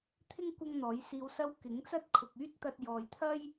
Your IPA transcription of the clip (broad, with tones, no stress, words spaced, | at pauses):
t̪ʰɪ˥ŋ kʷɐ˥ŋn̪ɔː˨˥jsiː˧wsɐ˥w kɪ˨˥ŋt͡sɐ˥t̚ kʰʊ˨k̚yː˥t̚t̪ɐ˧t̚ jɔː˨jt̪ʰɐ˥j